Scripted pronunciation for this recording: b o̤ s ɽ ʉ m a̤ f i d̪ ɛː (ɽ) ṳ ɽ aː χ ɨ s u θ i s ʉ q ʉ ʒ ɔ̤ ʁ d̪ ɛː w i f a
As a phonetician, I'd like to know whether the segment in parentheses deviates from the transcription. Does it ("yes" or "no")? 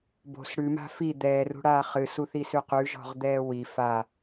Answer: yes